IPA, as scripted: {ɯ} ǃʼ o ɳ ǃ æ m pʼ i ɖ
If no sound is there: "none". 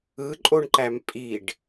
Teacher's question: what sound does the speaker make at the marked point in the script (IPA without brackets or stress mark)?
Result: ɯ